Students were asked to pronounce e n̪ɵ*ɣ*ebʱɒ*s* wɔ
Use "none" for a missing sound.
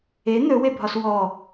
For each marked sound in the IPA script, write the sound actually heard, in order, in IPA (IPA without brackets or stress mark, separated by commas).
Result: w, s